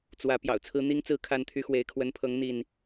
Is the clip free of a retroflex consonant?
yes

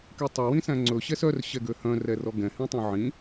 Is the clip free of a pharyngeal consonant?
no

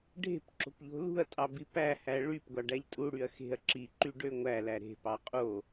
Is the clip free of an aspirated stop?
yes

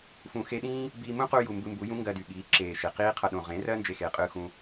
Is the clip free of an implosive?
no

